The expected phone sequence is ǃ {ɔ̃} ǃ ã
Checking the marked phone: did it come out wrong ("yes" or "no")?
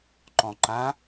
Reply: no